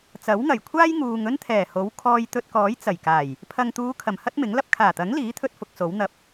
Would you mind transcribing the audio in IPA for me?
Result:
t͡s ɐ˨˥ w ŋ ɐ˨˩ j kʷʰ aː˥ j ŋ uː˨ ŋ ɵ˥ n t̪ʰ ɛː˨˩ h o˨˥ w kʰ ɔː˧ j t̪ ɵ˧ t̚ k ɔː˨˥ j t͡s ɐ˨˩ j k aː˨˩ j | pʰ ɐ˨ ŋ t̪ uː˨˧ kʰ ɐ˨˩ m h ɐ˥ t̚ m ɪ˨˥ ŋ l ɐ˥ p̚ kʰ aː˨˩ t̪ ɐ˨˥ ŋ l iː˨˥ t̪ʰ ɵ˧ t̚ f ʊ˧ k̚ s o˨˥ w n̪ ɐ˨ p̚

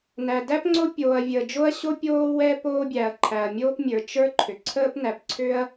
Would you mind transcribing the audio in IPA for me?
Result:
n æ˩ d æ˥ p ŋ͡ǀ o˥ pʲ oː˩ ɐ̯ vʲ əː˩ d͡ʒ o˥ ɐ̯ ɕ o˥ pʲ oː˥ w ɛ˥ p oː˥ bʲ æ˩ ɐ̯ ǃʰ æ˩ ɐ̯ mʲ oː˥ p mʲ ə˞˩ t͡ʃ ə˞˥ ǃʰ ʏ˩ ǀʰ əː˥ p n æ˩ p ǀʰ ʏ˥ ɐ̯

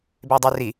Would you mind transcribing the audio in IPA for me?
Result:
b e dˤ y r i

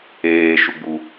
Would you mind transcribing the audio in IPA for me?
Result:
eː ʃ u ɡ͡b u

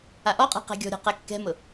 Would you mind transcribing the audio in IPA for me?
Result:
a ʔ ɔ qʼ ɛ̤ q ɛ̤ ɡʲ ɔ̤ ɾʲ ɔ̤ q ɛ kː ɛ̤ m ʊ

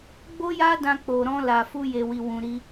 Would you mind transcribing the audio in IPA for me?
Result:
ɡ͡b o˦ j a˦ d ã˧ k͡p o˨ ɾ ɔ̃˧ l a˨ f u˧ j e˨ w i˨ w ũ˨ ɾ i˧

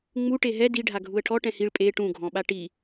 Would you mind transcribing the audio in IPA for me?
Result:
ŋ͡m u ʈ e ɦ ɛ d i ɖʱ a ɡʱ u ə̯ ʈʰ ɔ ʈ ɛ̃ h i ɭ pʼ e ʈ ũ ɡʱ ɔ̃ ɓ a ʈ i

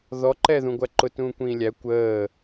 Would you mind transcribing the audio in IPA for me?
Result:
ð ɔ ǃ ɛ ð ũ ɡʷ æ ǃ ʊ t ũː kʷ ĩː lʲ æ kʷ əː

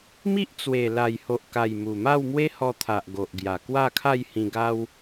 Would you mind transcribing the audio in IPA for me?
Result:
m i˦ ʔ t͡s w e˨˩ l a˨˩ j h o˨ ʔ k a˨˩ j m u˨˩ m a˥˧ w m w e˦ h ɔ˧ t̪ʰ a˨ ʔ ɡ o˨ ʔ ɡ j a˨˩ k w a˥˧ kʰ a˥˧ j h ĩ˧ ɡ a˦ w

